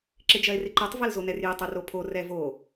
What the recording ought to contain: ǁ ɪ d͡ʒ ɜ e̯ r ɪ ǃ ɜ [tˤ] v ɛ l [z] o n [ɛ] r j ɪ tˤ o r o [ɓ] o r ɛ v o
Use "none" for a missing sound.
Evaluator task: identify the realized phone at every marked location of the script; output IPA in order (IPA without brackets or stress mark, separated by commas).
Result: tˤ, z, ɛ, pʰ